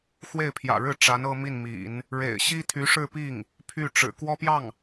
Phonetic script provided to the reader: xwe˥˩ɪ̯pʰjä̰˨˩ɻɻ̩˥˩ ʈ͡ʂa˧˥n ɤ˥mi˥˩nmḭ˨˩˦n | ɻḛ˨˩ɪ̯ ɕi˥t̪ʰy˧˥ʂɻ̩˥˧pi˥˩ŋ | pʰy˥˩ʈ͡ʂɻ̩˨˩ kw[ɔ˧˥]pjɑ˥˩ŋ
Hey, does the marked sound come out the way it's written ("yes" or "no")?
no